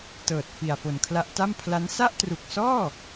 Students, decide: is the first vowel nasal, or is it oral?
oral